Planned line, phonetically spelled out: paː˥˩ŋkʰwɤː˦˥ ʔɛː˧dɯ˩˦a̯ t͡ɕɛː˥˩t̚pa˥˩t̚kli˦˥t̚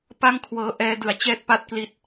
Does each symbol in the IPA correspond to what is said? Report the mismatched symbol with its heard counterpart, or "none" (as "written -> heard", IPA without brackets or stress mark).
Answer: aː˥˩ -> a˥˩